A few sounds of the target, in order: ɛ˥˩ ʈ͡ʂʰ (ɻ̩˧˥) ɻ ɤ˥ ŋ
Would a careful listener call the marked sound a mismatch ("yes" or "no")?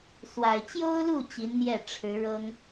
no